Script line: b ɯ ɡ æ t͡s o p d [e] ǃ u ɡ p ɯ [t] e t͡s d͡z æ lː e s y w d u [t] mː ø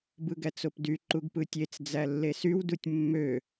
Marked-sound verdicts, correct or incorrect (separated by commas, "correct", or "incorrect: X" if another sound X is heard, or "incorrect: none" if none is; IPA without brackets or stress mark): incorrect: y, incorrect: tʲ, incorrect: tʲ